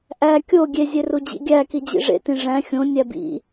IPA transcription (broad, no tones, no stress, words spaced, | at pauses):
ʔæ kʲo ɡʲezʲeru d͡ʑḭɡʲæki d͡ʑḭʐḛtĩ ʐæ̃ xʲõ nʲæbḭ